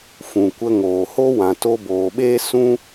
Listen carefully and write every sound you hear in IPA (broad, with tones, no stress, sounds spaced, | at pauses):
f ũ˨ kʷ ə˧ ŋ oː˨ h o˦ w ã˨ t o˧ b oː˨ ɓ eː˦ s ũ˦